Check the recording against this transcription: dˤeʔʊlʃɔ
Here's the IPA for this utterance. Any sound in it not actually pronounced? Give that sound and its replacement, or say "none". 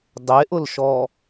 none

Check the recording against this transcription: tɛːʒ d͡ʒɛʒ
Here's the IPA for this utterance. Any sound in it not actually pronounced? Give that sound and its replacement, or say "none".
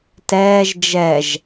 none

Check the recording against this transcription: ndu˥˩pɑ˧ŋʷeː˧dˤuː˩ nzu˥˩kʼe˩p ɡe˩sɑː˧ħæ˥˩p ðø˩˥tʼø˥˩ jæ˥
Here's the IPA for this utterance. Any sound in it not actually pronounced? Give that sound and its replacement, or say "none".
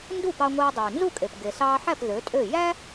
none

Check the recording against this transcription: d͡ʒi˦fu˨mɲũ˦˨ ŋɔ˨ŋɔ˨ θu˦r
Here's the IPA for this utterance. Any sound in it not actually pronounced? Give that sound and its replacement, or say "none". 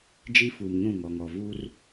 θ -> v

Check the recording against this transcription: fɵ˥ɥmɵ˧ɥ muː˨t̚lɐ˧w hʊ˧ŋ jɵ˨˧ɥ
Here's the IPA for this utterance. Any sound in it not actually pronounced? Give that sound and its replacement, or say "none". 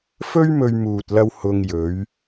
none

